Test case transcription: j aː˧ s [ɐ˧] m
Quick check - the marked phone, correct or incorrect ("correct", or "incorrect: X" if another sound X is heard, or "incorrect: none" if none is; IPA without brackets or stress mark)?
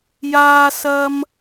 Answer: correct